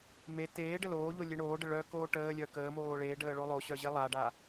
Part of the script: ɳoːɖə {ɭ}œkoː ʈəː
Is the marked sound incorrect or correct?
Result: correct